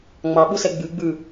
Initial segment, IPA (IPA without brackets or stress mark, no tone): ŋ͡m